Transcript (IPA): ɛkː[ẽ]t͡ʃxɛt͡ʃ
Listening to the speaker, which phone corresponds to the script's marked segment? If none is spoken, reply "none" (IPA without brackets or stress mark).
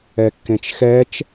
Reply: ẽ